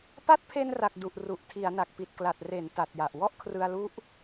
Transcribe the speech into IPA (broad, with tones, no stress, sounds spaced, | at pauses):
p a˦˥ t̚ pʰ e˧ n r a˨˩ k̚ d u˨˩ ʔ r u˨˩ ʔ tʰ i˩˦ a̯ n a˨˩ k̚ p i˨˩ t̚ k l a˨˩ t̚ r e˩˦ n t a˨˩ t̚ j a˨˩ ʔ w ɔ˥˩ ʔ kʰ r ɯ˧ a̯ l u˦˥ ʔ